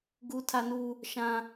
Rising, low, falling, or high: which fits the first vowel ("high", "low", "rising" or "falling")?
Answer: high